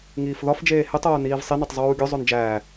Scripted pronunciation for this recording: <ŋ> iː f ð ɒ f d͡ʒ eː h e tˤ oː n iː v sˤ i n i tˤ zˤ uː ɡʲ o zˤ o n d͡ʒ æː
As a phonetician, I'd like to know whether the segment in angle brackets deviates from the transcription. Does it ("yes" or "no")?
no